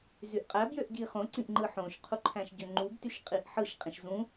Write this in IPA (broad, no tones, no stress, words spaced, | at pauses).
zyʔqʼæbjøʔ ɟiχõǀĩʔ ŋ͡ǃɯħõʃqʰu ǃʰæ̃ʃɟøŋ͡ǃubtyʃ qʼiʔħɯʃqʼĩʃ zũ